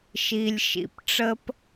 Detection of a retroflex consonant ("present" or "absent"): present